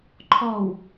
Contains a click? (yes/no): yes